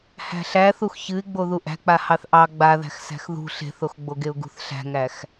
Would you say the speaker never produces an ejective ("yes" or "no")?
yes